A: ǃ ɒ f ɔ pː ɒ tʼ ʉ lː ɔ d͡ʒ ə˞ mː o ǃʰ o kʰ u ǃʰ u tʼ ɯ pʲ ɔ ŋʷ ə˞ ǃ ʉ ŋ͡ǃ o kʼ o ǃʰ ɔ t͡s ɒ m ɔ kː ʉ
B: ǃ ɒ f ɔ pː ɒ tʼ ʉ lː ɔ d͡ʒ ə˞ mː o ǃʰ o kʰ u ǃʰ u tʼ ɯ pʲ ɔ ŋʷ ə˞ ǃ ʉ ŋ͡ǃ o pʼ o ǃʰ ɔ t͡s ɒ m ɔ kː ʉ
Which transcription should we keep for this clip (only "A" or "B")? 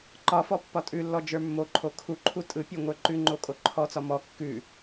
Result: A